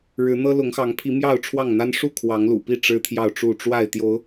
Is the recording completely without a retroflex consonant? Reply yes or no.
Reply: no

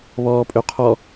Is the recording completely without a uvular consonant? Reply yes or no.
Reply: no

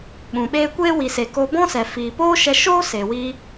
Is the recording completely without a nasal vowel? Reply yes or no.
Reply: no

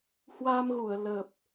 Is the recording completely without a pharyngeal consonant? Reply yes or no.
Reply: yes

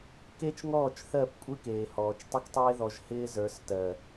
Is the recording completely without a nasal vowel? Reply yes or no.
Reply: yes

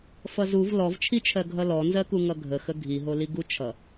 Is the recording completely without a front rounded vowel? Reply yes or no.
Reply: yes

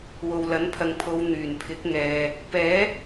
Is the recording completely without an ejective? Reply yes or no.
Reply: yes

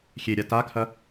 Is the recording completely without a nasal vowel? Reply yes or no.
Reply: yes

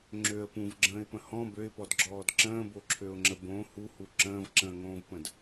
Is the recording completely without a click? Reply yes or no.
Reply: no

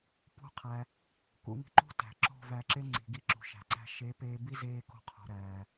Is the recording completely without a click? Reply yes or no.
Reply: no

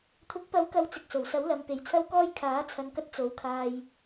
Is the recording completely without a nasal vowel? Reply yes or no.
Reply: yes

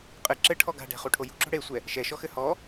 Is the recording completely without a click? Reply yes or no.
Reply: no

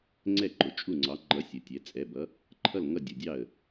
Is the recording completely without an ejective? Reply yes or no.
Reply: no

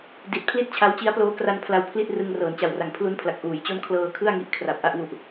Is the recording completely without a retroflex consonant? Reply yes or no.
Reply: yes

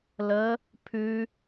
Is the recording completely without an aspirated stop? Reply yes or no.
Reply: no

